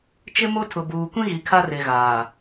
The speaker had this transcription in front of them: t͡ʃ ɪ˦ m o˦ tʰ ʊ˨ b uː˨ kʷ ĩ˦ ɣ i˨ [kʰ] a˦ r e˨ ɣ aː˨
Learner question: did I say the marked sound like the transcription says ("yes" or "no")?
yes